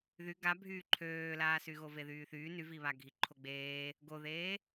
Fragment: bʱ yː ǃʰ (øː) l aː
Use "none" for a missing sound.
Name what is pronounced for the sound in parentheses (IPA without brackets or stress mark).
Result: øː